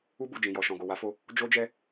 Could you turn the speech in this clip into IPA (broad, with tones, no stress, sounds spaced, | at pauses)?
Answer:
u˧ b u˨ d͡ʒ ĩ˨ j ɔ˨ ʃ ɔ̃˨ ɡ o˨ w a˨˦ f o˧ | d͡ʒ o˦ d͡ʒ ɛ˦